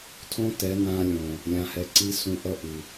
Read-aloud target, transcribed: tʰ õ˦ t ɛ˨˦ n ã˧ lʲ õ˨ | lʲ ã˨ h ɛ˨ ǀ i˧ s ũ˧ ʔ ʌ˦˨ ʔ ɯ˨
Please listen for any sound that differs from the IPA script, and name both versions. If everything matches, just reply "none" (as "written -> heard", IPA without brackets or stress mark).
none